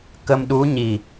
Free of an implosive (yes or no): no